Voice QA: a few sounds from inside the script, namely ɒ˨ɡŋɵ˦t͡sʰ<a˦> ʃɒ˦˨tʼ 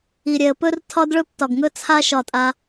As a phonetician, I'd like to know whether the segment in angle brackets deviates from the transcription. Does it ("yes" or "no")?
no